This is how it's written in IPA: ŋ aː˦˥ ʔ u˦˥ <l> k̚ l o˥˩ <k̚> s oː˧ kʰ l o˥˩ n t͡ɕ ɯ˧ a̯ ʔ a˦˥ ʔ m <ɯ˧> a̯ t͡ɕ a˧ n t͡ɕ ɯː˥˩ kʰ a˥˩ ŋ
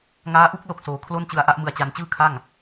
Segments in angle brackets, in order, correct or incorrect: incorrect: none, correct, correct

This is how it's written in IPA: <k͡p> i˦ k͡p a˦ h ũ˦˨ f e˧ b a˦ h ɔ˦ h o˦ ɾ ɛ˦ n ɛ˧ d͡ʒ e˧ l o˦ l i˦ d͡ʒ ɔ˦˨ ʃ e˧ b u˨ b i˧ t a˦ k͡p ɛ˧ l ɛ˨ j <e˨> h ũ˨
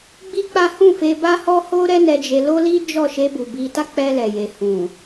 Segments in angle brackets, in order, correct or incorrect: incorrect: ɡ͡b, correct

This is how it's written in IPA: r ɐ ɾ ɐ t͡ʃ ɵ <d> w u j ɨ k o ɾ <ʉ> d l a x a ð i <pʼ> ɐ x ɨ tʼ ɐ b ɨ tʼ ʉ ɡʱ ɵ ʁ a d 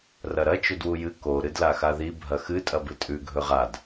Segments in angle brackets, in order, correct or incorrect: correct, incorrect: ɨ, incorrect: bʱ

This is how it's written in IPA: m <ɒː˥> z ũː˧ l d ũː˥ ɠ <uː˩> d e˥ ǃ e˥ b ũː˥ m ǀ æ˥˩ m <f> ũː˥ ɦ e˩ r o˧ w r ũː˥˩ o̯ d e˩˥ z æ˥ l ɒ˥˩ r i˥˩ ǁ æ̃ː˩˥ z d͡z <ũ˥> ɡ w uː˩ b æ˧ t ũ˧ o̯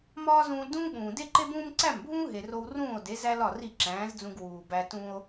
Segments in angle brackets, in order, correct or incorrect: correct, incorrect: ũː˩, incorrect: bʱ, incorrect: ũ˧

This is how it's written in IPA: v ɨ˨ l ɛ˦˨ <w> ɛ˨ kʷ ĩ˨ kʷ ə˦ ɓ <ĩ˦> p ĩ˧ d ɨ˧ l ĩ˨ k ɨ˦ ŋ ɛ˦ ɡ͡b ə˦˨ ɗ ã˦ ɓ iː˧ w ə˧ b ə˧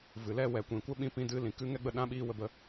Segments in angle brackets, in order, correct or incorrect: correct, incorrect: ĩ˧

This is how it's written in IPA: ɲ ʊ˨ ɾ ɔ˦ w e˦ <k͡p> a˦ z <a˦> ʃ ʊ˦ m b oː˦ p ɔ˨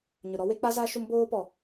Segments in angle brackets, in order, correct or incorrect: correct, correct

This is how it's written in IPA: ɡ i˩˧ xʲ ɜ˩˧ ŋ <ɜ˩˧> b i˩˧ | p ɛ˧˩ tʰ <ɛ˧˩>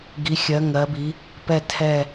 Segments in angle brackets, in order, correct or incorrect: correct, correct

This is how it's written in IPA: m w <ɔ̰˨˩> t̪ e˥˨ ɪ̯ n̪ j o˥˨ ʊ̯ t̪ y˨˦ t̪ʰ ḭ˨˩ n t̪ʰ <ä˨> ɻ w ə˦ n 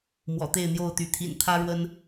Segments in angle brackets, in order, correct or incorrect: correct, incorrect: ä˦

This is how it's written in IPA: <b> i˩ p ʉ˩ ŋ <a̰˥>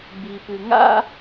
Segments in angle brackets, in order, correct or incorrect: correct, correct

